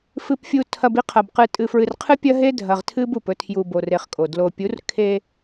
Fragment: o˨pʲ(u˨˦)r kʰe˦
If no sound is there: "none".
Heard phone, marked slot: u˨˦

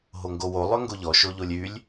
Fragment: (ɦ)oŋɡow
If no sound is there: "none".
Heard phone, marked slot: ɦ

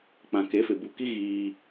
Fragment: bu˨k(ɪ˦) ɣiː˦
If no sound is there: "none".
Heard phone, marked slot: i˦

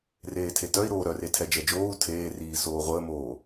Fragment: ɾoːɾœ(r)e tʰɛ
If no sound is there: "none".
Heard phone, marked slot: r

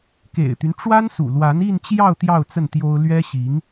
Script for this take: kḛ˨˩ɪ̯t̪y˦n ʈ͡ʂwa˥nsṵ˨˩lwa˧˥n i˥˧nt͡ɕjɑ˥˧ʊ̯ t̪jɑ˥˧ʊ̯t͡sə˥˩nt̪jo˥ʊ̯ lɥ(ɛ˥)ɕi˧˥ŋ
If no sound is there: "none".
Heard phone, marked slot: ɛ˥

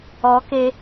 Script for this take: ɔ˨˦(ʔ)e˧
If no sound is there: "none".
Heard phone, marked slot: k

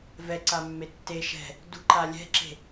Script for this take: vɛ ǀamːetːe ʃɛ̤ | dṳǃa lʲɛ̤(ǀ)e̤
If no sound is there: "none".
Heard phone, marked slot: ǁ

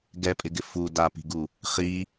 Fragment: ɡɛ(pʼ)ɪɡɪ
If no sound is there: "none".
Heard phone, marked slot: pʼ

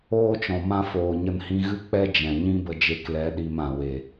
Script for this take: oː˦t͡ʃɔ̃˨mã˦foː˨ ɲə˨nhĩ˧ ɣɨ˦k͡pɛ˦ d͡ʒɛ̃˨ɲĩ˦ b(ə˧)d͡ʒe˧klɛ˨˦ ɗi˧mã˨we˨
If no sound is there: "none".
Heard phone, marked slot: ə˧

